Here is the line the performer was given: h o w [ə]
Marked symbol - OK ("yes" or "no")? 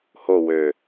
no